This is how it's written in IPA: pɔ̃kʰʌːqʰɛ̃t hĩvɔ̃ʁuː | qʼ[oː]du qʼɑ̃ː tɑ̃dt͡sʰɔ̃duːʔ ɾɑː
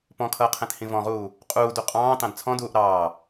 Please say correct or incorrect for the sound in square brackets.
incorrect